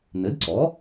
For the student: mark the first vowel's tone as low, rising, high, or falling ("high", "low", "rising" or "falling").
rising